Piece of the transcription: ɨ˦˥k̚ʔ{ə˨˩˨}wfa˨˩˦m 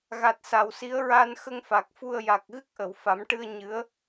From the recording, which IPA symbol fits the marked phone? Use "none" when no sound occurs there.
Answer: ə˨˩˨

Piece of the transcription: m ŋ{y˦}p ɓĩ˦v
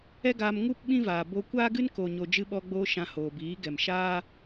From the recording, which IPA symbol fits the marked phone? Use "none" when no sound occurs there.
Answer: u˦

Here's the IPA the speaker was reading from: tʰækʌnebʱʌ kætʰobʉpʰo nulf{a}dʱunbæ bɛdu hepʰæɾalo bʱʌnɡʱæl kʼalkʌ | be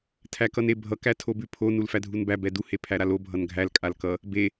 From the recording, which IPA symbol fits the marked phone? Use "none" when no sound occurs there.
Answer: æ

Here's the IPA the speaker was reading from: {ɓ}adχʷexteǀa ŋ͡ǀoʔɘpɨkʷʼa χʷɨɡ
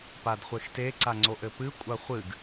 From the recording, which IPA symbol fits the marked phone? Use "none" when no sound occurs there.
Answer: p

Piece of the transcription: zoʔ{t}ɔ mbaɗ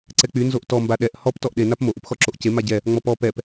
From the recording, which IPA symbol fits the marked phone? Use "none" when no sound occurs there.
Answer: t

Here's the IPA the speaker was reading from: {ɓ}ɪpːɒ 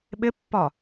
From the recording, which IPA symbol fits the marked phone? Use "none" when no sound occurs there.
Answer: ɓ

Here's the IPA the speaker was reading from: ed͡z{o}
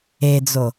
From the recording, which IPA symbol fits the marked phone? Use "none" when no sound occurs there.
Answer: o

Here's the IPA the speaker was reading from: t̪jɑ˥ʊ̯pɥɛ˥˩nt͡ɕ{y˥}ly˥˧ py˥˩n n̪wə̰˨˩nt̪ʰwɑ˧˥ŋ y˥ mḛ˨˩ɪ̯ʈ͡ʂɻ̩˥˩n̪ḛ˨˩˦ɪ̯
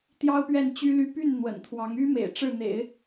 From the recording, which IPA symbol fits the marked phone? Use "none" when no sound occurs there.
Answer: y˥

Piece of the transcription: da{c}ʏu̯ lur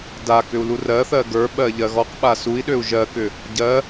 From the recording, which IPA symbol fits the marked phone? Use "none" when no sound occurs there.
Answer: k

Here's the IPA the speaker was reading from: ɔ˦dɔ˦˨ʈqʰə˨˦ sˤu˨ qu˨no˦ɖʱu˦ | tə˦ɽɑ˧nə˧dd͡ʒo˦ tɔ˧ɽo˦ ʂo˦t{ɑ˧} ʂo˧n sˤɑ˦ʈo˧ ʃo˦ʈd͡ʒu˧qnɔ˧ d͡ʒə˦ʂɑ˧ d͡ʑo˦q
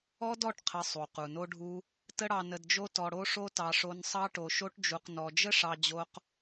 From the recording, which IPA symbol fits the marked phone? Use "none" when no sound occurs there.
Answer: ɑ˧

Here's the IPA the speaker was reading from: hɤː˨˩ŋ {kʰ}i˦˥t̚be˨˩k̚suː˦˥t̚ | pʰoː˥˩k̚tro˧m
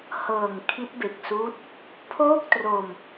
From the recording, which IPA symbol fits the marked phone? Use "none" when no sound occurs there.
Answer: kʰ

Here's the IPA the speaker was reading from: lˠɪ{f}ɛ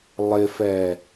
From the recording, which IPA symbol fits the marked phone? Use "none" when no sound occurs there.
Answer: f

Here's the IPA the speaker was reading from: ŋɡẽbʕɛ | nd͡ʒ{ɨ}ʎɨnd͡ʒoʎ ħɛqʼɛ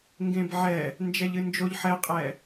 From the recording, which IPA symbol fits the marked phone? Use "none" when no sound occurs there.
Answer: ɛ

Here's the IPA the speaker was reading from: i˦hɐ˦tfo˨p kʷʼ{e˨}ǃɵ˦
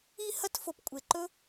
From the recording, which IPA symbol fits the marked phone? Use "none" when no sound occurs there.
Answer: e˨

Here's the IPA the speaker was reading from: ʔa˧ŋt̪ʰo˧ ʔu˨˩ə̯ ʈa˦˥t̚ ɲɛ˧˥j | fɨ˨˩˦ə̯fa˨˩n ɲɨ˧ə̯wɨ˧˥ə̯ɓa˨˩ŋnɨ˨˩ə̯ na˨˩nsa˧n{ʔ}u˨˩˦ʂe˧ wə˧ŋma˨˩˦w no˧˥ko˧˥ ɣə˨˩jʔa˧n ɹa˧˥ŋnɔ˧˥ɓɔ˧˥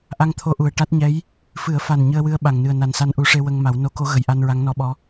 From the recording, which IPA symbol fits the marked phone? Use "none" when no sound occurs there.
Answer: ʔ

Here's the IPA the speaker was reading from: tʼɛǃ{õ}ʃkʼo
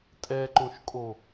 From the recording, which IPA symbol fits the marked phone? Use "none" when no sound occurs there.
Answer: õ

